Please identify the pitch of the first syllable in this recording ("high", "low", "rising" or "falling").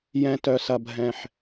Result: low